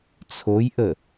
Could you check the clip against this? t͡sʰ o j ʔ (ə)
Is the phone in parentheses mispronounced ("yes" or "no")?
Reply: no